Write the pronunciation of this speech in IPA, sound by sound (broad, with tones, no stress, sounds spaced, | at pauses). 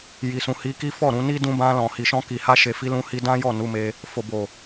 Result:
j i˨ s ũ˨ h i˧ k i˦ f ɔ˦˨ ɾ ũ˧ n i˦ d ũ˧ b ã˧ l ɔ̃˨ h i˨ ʃ ɔ̃˧ k i˨ h a˧ ʃ e˨ f i˧ l ũ˧ h i˧ d ã˦ j ɔ˦˨ n u˨˦ m e˧ | f o˨ b o˨